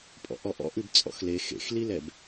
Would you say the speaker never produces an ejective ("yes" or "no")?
no